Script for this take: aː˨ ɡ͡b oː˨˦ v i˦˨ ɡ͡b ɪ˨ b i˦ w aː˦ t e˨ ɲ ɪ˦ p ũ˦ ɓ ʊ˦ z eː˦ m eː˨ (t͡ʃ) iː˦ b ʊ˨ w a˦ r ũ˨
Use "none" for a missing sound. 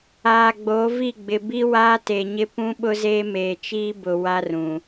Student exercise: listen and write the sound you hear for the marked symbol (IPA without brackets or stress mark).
t͡ʃ